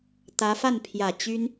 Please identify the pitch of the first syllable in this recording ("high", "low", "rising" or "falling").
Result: rising